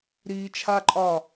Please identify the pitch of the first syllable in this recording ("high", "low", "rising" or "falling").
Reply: low